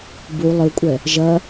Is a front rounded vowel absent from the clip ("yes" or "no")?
yes